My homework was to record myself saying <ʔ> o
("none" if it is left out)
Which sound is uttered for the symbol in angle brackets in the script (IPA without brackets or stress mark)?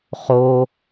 χ